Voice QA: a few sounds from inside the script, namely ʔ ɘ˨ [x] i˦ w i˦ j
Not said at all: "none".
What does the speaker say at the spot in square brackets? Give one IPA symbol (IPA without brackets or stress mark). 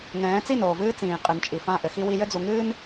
x